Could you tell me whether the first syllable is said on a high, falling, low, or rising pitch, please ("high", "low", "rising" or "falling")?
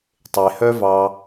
low